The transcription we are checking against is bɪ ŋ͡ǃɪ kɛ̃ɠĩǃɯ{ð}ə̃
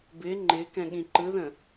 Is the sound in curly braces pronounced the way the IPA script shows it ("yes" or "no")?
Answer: yes